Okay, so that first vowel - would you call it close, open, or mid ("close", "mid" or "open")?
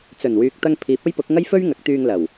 mid